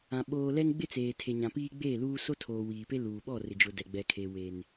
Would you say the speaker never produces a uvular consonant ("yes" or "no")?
yes